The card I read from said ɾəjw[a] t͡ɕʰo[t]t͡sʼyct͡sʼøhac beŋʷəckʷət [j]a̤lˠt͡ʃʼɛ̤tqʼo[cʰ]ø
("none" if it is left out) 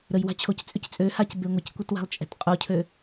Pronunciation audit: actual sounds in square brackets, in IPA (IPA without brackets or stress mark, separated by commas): a̤, c, w, cʰ